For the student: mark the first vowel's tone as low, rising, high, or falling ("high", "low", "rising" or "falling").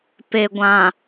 low